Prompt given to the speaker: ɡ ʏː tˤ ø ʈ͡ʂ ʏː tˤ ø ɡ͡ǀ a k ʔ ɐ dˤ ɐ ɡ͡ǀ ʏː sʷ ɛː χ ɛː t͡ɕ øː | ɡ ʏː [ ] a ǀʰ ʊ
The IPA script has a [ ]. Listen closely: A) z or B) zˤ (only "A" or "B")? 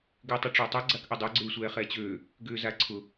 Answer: A